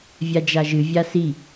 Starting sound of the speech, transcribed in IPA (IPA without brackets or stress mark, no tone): vʲ